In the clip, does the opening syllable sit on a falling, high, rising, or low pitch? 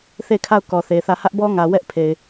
falling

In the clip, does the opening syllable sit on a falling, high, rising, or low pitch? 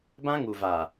high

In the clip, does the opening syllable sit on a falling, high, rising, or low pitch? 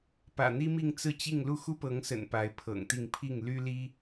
low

